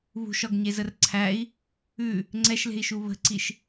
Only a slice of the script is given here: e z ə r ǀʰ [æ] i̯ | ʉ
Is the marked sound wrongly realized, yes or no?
no